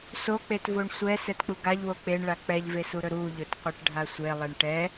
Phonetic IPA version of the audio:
s o k͡p e t v o ɳ sʷ ɛ s ɛ t k͡p u ɡ a ʎ w o k͡p e ɳ ɭ a k͡p ɛ ʎ v e s u ɾ ɵ ɾ u ʎ ɵ t qʷ ɛ ʈ ɖʱ a sʷ e lˠ e ɳ ʈ ɛ

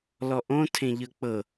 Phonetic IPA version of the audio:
l ɔ ʔ õ tʰ ẽ ʎ ɤ k͡p ɤ

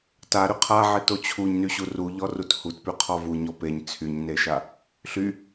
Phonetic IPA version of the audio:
t a ɾ y qʰ a ʕ e t o t͡ɕʰ u ɲ n y ɕ u r u ʎ ɔ r u t h u t p y qʰ ɔ v u ɲ ɔ p e ɲ t͡sʰ y ɲ n e ʃ a | ɬ y

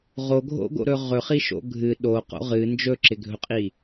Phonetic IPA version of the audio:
ʁ o ɡʱ o̰ ɡ o̰ ɾ ɵ ʁ ɵ χ i ʃ o̰ ɡʱ ɨ ɗ o q o̰ ʁ ɨ n d͡ʒ ɵ ǁ ɪ ɡʱ ɵ qʼ i

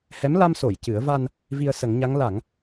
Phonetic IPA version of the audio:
h ɛ˧˥ m l a˧ m s o˨˩˨ j c ɨ˨˩˦ ə̯ v a˧ n | v i˧ ə̯ s ə˨˩˦ ŋ ɲ a˧˥ ŋ l a˨˩˦ ŋ

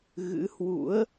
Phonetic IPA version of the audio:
ɣ ɨ̰˧˥ h w ṵ˧˥ ə̯

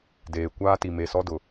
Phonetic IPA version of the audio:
d eː˨ kʷ aː˦ t i˨ m e˨ s ɔ˦ d ʊ˨

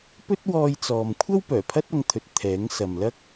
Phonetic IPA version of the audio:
p ɵ˥ t̚ w ɔː˧ j t͡s ɔː˨ m kʷʰ ɐ˥ w p œː˨˩ pʰ ɐ˥ t̚ ɐ˨˧ ŋ t̪ʰ ɵ˨ t̚ t̪ʰ ɛː˨˥ ŋ s ɐ˨ m l ɐ˥ k̚

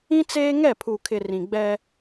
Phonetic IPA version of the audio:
ĩ˦ t͡s eː˦ ŋ ɛ˦˨ pʰ u˨ kʰ ɪ˨ r ĩ˨ ɡ͡b ɛ˦

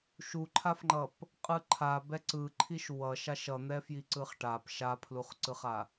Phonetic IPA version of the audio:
ʃ u ǃʰ a f ŋ͡ǃ ʌ p | qʼ ɯ ǃʰ a b ɛ ǀ ɯ ǃʰ i ʃ w ʌ ʃ a ʃ ʌ n̪ ɛ f j i ǀ ɯ χ ʈ a p ʃ a pʰ l u χ ǀ ɯ χ a

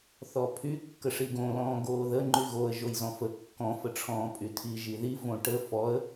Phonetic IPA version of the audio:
θ ɔ pʰ y kː ə ʂ i ɡ õ l ɔ̃ː ɡ oː ð ə ŋ͡ǃ y ɣ o ə̯ ʒ o j z ɔ̃ f ə kː ɔ̃ f ə ʈ͡ʂʰ ɔ̃ː pʼ y tʰ i ʒ i ð i v õ ʈ ə f ɔ ə̯

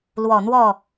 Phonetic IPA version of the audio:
l w ɔ˨˩ n̪ w ɔ˥˩

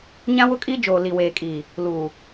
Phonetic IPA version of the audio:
ɲ ã˦ w ʊ˦ kʼ i˦ d͡ʒ oː˨ l i˨ w eː˨ kʼ iː˨ | l uː˨

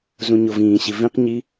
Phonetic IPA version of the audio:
z ũ ɲ o v ĩː ɕ i v ĩ q ɲ i

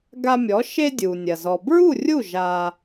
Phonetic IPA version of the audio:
ɡ a˧ mʲ ɔ˩˥ ʃ e˧ dʲ u˩ nʲ ɐ˩ z ɔ˩ b ɹ u˥˩ rʲ u˥˩ ʒ a˧

